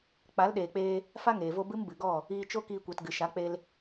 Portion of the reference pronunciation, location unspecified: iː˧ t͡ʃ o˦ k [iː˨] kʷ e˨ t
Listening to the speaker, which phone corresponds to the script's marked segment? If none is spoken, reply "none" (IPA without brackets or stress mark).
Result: iː˧